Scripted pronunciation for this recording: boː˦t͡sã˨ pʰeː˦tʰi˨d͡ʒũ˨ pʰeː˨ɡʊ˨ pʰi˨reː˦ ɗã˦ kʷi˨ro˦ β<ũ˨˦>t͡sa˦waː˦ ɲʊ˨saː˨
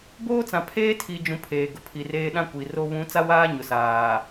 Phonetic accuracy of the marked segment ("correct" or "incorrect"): correct